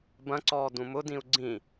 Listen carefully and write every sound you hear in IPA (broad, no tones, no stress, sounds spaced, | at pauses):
b ɐ̃ ǀ ɔː d ũ m ʊ d ĩ u̯ ɡ͡ǀ ĩ